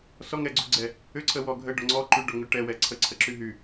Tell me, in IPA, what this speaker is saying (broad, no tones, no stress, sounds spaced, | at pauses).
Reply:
s ɔ ŋ ɛ ɡ͡ǀ u ɡ͡ǀ ɛ | ʏ ǀʰ ə w ɔ ɡʱ ə ɖ ɔ ŋ͡ǀ ɔ ǃ y ɖ ɔ ŋ ʏ ʈ ɛ w ɛ ǀʰ ə ǀʰ ə ǁ y ɦ y